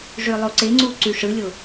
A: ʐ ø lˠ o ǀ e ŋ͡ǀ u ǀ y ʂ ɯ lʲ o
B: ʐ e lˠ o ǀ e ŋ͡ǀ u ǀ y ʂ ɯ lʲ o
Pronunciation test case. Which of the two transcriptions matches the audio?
A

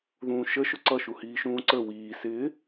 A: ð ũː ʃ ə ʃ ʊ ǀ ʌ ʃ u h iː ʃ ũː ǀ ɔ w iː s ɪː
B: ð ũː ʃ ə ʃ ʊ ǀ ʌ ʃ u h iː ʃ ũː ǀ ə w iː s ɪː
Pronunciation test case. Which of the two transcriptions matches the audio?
B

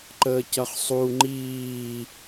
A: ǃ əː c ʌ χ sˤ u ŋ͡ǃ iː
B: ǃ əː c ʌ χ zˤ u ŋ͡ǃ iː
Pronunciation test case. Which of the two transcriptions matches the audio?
A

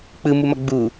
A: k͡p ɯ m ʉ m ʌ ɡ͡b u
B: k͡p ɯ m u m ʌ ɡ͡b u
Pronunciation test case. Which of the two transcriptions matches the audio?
B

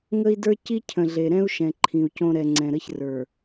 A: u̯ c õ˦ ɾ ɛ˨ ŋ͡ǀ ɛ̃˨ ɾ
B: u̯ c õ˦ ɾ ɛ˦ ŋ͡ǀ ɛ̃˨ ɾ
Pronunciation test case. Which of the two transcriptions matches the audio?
A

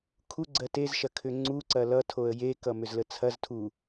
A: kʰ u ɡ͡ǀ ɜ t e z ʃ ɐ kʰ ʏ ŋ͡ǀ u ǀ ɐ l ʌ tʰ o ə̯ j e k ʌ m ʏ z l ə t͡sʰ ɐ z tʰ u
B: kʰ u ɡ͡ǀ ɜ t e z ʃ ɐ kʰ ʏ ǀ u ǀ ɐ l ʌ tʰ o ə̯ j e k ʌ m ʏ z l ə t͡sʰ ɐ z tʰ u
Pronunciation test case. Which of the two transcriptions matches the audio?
A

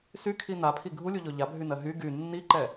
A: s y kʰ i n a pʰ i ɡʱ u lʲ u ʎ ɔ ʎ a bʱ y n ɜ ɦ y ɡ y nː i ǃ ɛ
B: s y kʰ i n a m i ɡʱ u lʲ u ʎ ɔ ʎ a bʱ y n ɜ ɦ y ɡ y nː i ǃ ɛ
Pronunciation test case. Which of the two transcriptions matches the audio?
A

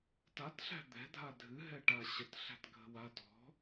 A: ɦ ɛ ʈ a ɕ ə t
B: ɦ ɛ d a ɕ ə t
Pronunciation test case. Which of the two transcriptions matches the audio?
A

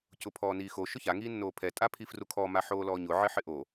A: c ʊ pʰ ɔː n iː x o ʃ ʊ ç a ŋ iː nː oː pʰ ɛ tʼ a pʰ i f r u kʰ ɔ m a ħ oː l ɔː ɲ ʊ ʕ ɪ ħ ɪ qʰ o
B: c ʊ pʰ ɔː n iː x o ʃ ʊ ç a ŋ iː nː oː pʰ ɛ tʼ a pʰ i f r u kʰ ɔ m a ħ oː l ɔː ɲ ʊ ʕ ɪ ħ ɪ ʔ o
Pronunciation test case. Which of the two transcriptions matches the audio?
B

